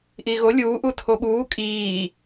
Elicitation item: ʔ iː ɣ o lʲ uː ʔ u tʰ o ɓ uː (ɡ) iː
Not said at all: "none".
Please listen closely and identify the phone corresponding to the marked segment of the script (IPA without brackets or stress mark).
kʼ